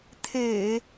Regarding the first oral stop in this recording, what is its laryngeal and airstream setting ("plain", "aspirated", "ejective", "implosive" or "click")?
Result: aspirated